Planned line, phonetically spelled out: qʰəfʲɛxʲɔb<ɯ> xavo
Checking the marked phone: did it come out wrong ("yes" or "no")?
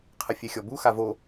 yes